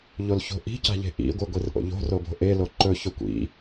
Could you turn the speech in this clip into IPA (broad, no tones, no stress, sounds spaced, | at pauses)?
ʎ o l ç o̤ ʔ i̤ c a̤ ʎ e̤ ʔ ḭ ɡʷ ɨ ɡʷ i r ʔ o̰ ʎ o̤ r o b o̤ ʔ e l o ǃ ɵ ç ɵ kʷ ḭ